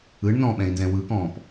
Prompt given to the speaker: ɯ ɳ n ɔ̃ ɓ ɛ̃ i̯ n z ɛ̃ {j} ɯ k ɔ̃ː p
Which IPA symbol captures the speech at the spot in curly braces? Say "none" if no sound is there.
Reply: w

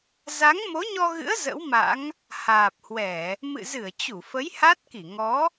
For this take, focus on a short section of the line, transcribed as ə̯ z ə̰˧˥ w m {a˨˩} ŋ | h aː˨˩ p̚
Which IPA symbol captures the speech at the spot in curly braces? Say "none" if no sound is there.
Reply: a̰˧˥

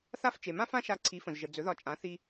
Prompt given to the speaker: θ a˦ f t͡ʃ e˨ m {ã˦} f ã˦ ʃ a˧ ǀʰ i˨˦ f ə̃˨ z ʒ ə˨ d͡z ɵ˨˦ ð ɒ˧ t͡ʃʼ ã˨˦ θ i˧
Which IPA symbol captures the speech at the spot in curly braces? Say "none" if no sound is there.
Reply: ã˦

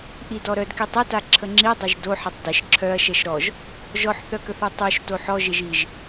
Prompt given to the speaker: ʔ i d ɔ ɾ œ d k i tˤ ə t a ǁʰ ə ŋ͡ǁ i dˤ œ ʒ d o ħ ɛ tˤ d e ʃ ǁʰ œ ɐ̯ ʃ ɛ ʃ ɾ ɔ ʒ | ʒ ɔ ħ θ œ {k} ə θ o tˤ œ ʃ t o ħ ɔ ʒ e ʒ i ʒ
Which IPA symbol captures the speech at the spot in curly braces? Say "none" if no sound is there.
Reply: k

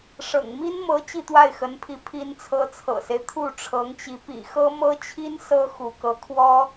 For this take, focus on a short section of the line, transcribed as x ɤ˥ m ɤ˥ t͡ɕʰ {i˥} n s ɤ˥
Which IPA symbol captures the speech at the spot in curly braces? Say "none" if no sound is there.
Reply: i˥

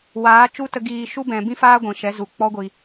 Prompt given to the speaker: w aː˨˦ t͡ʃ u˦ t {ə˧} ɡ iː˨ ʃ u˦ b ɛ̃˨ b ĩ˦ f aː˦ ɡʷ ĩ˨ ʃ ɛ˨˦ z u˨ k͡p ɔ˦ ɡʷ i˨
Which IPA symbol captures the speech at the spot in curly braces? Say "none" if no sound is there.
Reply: ə˧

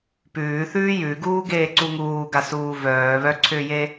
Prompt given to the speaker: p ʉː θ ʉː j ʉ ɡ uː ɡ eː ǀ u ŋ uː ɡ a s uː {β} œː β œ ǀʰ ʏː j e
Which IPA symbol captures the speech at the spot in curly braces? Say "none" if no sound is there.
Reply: v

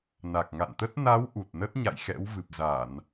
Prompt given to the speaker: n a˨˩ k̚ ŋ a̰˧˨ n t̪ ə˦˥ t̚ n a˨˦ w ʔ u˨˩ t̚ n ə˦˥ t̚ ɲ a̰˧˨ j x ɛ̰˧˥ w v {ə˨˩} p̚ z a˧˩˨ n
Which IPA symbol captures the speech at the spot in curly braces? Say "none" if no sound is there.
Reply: ɨ˨˩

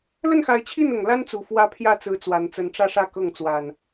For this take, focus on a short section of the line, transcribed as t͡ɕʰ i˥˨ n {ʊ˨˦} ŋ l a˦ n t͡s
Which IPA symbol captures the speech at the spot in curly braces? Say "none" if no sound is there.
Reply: ʊ˨˩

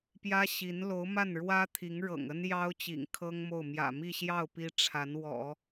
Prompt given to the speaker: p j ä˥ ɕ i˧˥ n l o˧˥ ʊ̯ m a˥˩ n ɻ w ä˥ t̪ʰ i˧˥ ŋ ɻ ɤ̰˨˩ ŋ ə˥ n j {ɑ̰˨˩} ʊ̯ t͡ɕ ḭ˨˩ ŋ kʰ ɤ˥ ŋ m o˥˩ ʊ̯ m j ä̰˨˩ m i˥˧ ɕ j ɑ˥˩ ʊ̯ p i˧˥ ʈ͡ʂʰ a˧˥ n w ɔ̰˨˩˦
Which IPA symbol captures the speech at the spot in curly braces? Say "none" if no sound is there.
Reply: ɑ˥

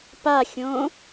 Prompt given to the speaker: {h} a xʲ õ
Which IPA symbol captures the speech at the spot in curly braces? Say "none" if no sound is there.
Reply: p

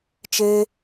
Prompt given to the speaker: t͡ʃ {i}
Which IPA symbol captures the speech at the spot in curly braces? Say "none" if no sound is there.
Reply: e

